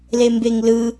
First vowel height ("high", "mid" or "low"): mid